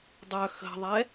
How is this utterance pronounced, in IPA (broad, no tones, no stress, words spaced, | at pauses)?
dˤœ xə̤ðˤɛ